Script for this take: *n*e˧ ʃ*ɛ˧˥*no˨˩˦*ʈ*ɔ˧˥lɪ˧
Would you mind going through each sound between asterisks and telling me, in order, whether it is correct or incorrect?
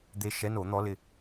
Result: incorrect: d̪, correct, incorrect: n̪

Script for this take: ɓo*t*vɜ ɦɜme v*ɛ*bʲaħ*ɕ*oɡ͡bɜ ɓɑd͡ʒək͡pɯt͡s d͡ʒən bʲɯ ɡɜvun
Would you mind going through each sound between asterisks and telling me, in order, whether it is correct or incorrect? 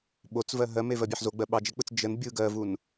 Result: incorrect: t͡s, incorrect: ɜ, incorrect: z

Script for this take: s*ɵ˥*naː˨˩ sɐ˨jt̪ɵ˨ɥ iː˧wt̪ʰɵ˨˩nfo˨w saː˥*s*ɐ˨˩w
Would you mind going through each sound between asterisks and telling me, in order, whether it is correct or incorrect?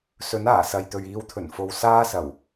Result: incorrect: ɵ˨˥, correct

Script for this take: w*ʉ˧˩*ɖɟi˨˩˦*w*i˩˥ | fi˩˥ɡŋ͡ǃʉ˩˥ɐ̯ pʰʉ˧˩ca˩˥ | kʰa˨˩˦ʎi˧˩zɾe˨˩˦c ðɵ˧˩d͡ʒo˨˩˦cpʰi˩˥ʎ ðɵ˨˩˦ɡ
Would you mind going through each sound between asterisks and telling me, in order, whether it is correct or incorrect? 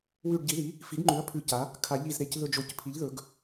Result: correct, incorrect: ð

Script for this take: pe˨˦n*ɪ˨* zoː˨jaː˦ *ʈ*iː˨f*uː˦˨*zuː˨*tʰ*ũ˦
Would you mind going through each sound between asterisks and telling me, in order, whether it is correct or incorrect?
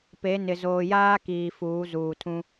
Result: correct, incorrect: k, incorrect: uː˨˦, correct

